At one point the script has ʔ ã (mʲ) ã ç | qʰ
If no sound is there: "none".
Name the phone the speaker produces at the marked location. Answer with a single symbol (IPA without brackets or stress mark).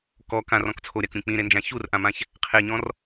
m